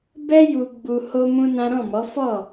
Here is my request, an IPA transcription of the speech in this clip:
bɛ˦ ju˧ɡ͡bu˧ ho˦mũ˦nã˦ ɾɔ̃˦˨mɔ˨˦ fɔ˦˨

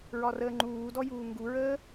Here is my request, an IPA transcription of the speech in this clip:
ɹɒrəːŋ͡ǃuːdɔ juːŋɡuɹəː

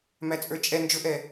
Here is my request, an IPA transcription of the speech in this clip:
mæt͡sʼə˞t͡ʃʼɛ nd͡ʒʊʔɛ

